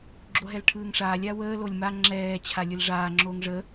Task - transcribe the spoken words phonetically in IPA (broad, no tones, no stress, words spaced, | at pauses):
ɡ͡ǁoɦɛlʈʰɯːŋʂaːlʲ awəː lolʲma ŋ͡ǁɛː t͡ɕʰalʲɯlʐaː ŋ͡ǁoːŋʐə